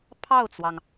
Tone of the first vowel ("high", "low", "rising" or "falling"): falling